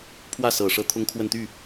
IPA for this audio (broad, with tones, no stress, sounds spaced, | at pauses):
pʰ w ä˥˩ s ɤ˨˩ ʂ ɤ˥ t̪ʰ ʊ˥ ŋ kʰ w ə˥˧ n t̪ y˥˩